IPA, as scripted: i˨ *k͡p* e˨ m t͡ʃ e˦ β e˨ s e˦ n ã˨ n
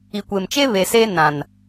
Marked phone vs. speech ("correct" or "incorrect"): incorrect